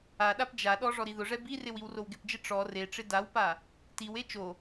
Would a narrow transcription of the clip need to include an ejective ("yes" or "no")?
no